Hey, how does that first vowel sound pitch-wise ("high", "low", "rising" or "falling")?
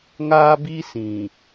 high